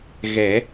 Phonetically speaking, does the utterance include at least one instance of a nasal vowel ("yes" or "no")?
no